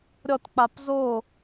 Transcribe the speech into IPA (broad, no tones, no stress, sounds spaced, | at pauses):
ɾʲ ɔ t k͡p a p z o